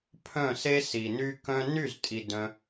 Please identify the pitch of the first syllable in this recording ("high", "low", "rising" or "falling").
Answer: falling